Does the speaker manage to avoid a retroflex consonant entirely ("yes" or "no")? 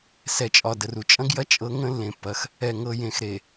yes